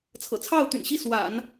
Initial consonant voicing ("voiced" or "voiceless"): voiceless